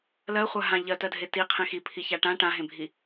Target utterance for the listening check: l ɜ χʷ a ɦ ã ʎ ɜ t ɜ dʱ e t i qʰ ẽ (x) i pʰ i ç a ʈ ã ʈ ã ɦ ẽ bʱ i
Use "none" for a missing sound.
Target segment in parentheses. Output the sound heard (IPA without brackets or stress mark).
x